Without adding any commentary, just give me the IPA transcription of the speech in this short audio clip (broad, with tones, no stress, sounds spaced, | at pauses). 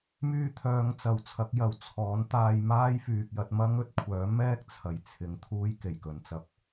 m yː˧ t̪ʰ œː˨˧ ŋ t͡s ɐ˨ w t͡sʰ ɐ˨˥ k̚ j ɐ˨ w t͡sʰ ɔː˨˥ n t̪ aː˧ j m aː˥ j f yː˨ k̚ j ɐ˧ t̚ m ɐ˥ ŋ ɵ˨˥ t̚ kʷʰ œː˨˥ m ɛː˥ k̚ t͡sʰ ɐ˨ j t͡sʰ ɪ˨˧ ŋ t̪ʰ uː˥ j k e˨˩ j k ɵ˨ n t͡s ɐ˧ p̚